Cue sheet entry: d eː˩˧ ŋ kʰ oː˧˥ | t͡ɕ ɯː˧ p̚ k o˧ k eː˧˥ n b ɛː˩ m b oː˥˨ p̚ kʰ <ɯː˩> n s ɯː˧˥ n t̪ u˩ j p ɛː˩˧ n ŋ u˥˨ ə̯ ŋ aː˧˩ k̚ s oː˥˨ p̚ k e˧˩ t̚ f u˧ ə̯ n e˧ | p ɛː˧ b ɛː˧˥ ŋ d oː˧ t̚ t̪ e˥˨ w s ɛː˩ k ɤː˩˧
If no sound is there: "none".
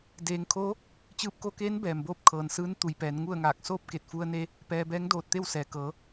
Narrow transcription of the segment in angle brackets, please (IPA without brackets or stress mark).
ɤː˩